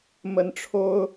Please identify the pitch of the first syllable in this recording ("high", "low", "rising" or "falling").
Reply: rising